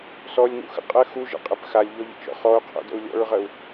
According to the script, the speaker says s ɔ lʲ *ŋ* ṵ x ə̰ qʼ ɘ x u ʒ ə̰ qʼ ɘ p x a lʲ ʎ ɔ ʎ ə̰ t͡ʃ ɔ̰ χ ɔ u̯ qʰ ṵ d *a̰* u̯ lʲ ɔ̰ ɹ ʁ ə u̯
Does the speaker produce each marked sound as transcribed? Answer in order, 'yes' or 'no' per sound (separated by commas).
yes, no